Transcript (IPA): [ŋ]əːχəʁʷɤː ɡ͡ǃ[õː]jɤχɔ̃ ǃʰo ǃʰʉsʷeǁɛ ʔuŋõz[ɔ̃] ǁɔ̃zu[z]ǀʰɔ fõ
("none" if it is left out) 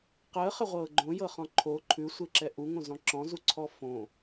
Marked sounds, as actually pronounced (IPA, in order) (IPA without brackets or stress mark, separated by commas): q, õ, ɔ̃, none